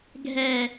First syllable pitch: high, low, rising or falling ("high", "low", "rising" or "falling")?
low